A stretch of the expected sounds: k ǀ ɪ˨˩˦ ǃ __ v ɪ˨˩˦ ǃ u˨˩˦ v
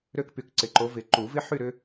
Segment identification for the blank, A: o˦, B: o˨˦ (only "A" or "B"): B